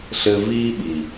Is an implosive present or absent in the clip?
present